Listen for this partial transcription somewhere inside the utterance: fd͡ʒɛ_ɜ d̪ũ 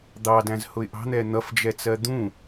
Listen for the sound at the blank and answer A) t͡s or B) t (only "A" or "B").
A